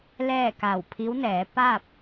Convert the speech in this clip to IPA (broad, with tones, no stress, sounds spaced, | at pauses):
l ɛː˥˨ k a˧˩ w pʰ i˧˥ w n ɛː˩˧ p a˥˨ p̚